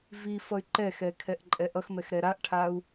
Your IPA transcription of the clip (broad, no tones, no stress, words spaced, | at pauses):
vifʌy̯ ǃɛxɛ kʰɛʔǃʼɛʔʌxmɛx ɾɛɾaʔʈʰau̯